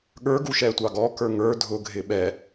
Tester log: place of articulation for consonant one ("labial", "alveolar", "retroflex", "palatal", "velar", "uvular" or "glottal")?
velar